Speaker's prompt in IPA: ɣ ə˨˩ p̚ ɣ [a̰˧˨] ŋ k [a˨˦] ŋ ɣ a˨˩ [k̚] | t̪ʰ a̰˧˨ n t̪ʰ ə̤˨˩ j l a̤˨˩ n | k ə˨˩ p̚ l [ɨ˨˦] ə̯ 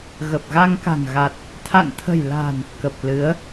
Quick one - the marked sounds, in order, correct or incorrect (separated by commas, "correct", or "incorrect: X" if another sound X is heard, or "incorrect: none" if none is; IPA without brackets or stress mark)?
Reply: incorrect: a˧, incorrect: a̤˨˩, incorrect: t̚, correct